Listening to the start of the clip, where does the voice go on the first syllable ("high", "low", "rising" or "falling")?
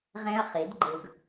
high